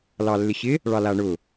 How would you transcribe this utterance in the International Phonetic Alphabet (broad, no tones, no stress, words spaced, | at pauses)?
lɑlːɪɕɪ | ɭɑlaɳʊ